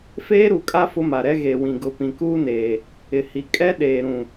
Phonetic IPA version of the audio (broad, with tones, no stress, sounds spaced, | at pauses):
f eː˦ ɾ u˨ kʼ a˦ f ʊ˦ m a˨ ɾ ɛ˦ ɣ e˨ w ĩ˨ ɡ ʊ˨ p ĩ˨ k uː˦ n eː˨ | ɪ˨ h i˨ kʼ ɛ˦ ɗ eː˨ ɾ ũ˨